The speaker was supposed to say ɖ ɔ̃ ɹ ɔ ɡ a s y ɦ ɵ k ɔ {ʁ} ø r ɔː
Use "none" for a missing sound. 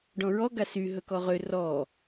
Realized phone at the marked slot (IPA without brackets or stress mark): ʁ